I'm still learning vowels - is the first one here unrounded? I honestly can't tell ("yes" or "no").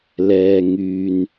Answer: yes